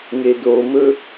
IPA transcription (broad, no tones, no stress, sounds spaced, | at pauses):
ŋ e d o m ɵ